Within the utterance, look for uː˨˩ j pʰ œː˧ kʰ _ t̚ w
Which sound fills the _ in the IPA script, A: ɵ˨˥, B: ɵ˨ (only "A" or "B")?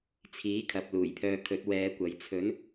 A